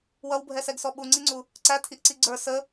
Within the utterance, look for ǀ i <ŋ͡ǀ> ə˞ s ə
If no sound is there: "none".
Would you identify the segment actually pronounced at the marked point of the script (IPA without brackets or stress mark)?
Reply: ɡ͡ǀ